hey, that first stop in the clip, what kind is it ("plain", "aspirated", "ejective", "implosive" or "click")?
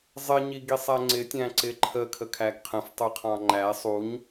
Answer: plain